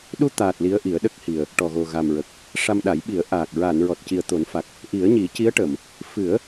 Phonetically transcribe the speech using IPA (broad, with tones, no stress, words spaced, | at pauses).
ɗu˧t̪aː˨˩t̚ li˧˥ə̯ʔi˨˩˦ə̯ɗə˦˥k̚hi˨˩ə̯ | ʈɔ˨˩ɣo˨˩ ɣa˨˩mɹə˨˩k̚ | ʂa˧mɗa˨˩˦j ɓi˨˩˦ə̯ʔaː˨˩k̚ ɹaː˨˩˨nɹɔ˨˩t̚ci˨˩ə̯t̪o˨˩˦n fa˨˩k̚ | ʔi˨˩˦ə̯ɲi˨˩˦ci˧˥ə̯ʈə˨˩˨m | fɨ˨˩˦ə̯